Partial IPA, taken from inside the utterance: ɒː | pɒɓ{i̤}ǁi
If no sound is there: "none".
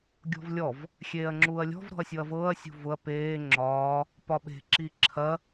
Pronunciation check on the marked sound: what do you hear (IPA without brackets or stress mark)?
e̤